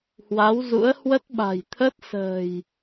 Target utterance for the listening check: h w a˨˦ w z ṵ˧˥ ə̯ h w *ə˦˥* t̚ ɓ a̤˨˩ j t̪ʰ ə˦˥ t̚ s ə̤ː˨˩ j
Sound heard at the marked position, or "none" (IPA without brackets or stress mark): ə˦˥